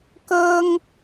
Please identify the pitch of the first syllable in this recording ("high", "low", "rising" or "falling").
high